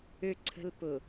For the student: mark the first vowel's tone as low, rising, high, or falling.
low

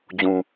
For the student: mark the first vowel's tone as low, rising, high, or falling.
low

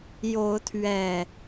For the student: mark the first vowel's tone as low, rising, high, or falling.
rising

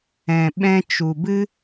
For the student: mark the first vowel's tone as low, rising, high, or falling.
low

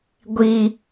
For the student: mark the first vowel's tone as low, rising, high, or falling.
high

